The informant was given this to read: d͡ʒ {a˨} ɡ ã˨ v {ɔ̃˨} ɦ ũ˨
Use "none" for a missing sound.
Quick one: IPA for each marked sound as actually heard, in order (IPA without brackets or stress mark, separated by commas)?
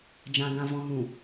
ã˨, ɔ̃˨